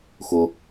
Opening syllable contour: low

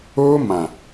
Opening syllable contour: high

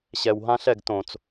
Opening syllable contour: low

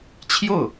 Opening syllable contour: falling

